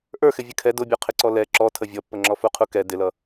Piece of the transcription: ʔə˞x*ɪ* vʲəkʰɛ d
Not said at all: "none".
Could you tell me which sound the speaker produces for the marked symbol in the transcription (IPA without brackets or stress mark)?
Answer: ɪ